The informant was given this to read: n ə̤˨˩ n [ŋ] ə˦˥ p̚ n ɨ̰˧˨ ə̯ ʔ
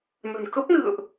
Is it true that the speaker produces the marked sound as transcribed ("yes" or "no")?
no